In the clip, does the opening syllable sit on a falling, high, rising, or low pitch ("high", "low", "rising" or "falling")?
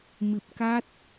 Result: low